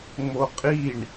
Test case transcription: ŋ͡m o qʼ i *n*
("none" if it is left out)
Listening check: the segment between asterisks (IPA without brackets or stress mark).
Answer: ɳ